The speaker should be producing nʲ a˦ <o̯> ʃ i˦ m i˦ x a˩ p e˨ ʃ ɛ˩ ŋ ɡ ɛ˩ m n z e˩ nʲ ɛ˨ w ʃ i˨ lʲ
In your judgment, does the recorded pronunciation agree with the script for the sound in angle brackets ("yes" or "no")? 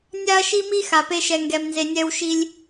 no